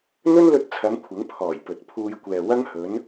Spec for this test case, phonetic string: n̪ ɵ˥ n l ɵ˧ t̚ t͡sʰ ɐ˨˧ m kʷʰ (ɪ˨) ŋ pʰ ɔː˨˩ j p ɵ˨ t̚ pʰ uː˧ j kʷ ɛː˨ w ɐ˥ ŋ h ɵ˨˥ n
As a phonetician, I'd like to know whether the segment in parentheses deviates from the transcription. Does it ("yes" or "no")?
yes